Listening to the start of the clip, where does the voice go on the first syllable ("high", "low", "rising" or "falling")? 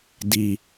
low